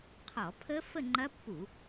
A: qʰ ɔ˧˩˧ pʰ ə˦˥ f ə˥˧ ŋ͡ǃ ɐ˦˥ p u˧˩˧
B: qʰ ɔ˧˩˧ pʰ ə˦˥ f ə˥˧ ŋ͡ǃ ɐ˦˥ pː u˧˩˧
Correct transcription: B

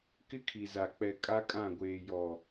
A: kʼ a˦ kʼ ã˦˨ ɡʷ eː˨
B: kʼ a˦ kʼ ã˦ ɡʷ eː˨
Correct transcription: A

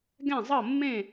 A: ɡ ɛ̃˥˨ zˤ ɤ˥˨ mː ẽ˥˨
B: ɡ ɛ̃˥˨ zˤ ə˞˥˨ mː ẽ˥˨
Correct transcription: A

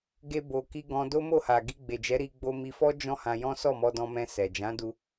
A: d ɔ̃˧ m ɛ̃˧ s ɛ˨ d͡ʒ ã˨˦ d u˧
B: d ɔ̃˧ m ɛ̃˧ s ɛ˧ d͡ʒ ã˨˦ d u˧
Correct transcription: A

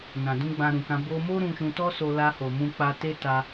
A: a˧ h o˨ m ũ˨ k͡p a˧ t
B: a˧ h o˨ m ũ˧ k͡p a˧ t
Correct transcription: B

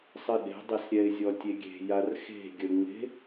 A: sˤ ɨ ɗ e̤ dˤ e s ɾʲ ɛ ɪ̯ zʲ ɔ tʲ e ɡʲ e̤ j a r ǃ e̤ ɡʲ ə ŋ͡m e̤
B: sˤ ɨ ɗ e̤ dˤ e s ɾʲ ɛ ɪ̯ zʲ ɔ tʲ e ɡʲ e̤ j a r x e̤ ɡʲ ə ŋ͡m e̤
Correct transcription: B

